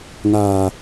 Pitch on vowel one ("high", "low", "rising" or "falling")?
low